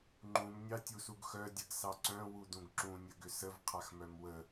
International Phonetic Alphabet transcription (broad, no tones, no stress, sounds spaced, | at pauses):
ŋ͡ǃ ũ m nʲ ɑ tʲ u s u ɡ x œ dʲ ə ɡ s ɑ ǀ œ̃ w u d ũ ɡ ǁ ũ nʲ ə ɡ ʏ s ə v qʰ a x m œ m w ə